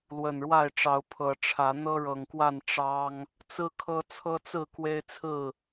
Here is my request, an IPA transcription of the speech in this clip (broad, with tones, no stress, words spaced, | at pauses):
lwə˨˩nɻwa˥˨ɪ̯ʈ͡ʂɑ˨˦ʊ̯ pʰɤ˨˦ʈ͡ʂʰä˨˦ n̪ɤ˦ɻɤ˨˩ŋkwa˥˨n ʈ͡ʂɑ˦ŋ | t͡sɹ̩˦kʰɤ˦ t͡sʰɤ˦t͡sɹ̩˥˨ kwe˦ɪ̯t͡sʰɹ̩˥˨